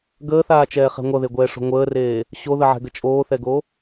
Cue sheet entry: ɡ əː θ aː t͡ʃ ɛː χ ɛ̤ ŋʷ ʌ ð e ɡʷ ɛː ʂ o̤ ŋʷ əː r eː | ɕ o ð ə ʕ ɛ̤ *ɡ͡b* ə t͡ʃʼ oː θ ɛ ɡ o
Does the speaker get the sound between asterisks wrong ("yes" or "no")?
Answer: yes